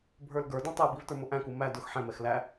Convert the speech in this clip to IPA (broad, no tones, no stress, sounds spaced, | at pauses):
bʱ ə˞ l ɡ ə˞ d ɔ̃ tˤ ɛ b i v t ə˞ m ʊ ʔ æ̃ k u m æ d ʊ x ħ ɛ̃ m ɛ x l æ